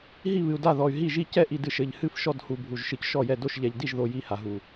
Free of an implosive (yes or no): yes